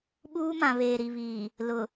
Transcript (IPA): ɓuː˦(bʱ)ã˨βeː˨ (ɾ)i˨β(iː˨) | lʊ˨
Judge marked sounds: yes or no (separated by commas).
no, yes, yes